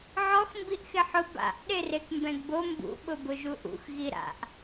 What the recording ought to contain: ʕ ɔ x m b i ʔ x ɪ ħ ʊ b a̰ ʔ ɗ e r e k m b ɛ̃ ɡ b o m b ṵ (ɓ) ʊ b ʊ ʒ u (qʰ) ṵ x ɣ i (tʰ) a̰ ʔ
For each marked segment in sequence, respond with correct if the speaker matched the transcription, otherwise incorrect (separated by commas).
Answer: correct, incorrect, incorrect